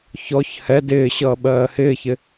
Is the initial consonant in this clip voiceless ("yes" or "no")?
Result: yes